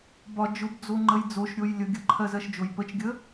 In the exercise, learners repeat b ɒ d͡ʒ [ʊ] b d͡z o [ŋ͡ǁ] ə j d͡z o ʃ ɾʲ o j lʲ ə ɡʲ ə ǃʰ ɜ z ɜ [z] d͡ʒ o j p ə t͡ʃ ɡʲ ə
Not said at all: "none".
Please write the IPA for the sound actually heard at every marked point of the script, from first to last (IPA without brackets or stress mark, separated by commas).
ʊ, ŋ͡ǃ, ʃ